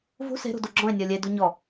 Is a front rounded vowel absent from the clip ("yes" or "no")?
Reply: no